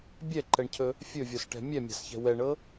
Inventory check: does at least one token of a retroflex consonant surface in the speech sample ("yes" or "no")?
yes